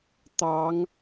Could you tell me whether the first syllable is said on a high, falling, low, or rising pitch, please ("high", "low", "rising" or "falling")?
rising